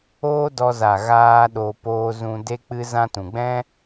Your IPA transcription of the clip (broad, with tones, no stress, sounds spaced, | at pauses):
oː˦ d ɔ˧ z a˨ ɣ aː˦ ɗ o˧ p oː˦ z ũ˧ d e˦ k͡p ɨ˦ z ã˧ t ũ˨ ɡ͡b ɛ̃˦